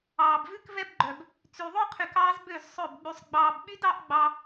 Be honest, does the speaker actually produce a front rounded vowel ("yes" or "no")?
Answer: yes